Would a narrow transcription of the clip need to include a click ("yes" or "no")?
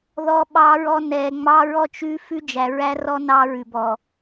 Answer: no